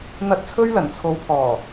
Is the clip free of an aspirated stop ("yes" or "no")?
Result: no